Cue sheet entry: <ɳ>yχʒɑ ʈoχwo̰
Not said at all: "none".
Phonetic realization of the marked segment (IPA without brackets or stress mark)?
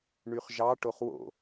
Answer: ɳ